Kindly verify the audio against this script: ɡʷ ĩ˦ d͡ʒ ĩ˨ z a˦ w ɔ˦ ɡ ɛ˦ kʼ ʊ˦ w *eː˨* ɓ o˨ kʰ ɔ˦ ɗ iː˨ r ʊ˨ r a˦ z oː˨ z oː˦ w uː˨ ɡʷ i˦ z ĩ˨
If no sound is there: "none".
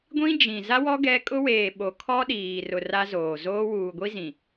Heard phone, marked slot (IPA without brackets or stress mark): eː˨